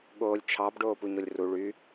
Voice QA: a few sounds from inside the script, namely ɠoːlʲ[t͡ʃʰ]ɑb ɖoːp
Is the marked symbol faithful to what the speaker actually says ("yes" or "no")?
yes